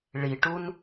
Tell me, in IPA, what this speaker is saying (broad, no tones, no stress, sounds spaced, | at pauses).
ɭ i ʈ u n